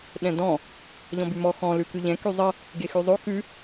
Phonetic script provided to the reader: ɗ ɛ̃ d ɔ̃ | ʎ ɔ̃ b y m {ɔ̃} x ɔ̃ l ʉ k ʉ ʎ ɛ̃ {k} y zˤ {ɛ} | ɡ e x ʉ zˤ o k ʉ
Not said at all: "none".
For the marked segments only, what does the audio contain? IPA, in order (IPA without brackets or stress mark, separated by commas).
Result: ɔ, k, ə